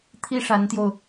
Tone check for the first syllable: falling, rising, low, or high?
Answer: high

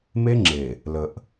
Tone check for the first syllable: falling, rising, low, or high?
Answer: high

